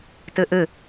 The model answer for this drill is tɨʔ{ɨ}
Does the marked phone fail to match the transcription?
no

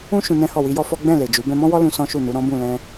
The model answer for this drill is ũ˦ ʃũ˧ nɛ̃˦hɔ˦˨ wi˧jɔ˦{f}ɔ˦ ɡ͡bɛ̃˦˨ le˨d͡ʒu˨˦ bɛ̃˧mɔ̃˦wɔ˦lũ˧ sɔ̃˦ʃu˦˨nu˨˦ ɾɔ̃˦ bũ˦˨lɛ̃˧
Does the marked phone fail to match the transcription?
no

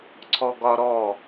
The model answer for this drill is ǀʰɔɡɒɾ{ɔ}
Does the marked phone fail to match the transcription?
no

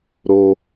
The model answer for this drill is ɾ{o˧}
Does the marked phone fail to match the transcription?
no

